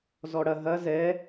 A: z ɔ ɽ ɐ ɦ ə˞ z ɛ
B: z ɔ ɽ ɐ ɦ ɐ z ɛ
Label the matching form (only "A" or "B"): B